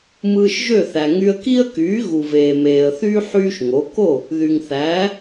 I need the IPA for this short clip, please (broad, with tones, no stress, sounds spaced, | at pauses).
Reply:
m ɯː˧ ʃ ʒ ø˥˩ θ æ˩ ŋ y˧ ə̯ k i˥ ə̯ k yː˩˥ ɣ u˩ v eː˩ m eː˩ ə̯ θ yː˥ ħ yː˥ ʃ ŋ o˩˥ k o˥˩ | ð y˩ ŋ θ æː˩˥